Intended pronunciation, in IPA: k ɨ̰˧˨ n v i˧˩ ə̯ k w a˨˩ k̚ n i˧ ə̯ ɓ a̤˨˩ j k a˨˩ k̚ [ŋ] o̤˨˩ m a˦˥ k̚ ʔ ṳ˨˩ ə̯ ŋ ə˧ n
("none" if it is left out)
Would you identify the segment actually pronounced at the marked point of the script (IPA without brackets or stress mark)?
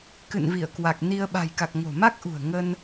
ŋ